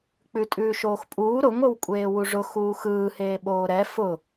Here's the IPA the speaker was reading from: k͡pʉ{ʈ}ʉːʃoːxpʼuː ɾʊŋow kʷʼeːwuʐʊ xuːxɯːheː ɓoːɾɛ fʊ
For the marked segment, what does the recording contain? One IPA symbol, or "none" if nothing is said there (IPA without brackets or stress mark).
tʼ